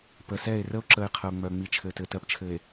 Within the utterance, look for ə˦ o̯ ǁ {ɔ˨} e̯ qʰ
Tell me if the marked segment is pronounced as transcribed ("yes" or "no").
no